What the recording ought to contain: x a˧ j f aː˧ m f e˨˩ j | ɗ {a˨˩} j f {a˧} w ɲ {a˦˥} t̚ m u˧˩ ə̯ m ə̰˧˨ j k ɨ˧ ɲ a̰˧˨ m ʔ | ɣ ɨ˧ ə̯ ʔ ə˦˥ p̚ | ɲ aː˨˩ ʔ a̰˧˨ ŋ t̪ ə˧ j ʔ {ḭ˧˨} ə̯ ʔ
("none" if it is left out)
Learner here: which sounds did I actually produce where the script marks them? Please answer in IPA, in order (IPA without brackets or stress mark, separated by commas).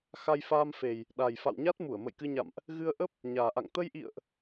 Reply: a˨˩, a̰˧˨, a˦˥, ḭ˧˨